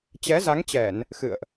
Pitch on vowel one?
rising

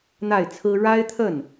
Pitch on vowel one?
falling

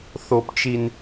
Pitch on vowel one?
low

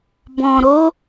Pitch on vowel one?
low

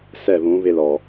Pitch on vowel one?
falling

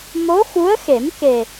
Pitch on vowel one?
rising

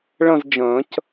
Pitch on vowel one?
falling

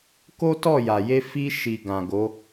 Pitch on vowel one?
high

